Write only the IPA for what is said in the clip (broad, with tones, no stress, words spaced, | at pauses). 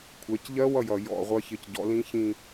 kʷʰɛ˩˧cʎɜ˦˥wʌ˦˨ jʌ˨˩jɔ̰˦˨ʁʷɜ˦˥ çɪ˨˩cɟɔ̰˩˧lĩ˦˥çĩ˦˨